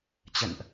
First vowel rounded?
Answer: no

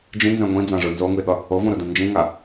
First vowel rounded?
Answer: no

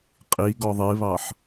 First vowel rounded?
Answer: no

